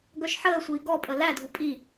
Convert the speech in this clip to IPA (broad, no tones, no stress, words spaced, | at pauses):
ɡœʃħəːsʷiː ɡɔpʼə lædʱu pʼi